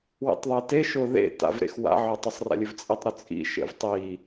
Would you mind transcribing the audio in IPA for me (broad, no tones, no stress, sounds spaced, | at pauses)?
w ḭ tˤ ðˤ e t e ʃ ʊ ð ḛ t a̰ v ɾ ḛ x w a̰ ʕ ɵ tˤ ʊ sˤ r a̰ lʲ ɵ v t͡sʼ i tˤ ɾ ʊ t͡sʼ ḭ ʃ ḛ v tˤ i